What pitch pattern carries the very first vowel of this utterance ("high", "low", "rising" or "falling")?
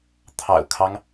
low